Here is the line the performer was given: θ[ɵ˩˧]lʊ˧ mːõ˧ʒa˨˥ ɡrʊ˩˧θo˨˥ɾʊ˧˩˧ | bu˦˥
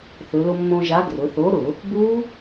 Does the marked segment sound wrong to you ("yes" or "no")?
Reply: no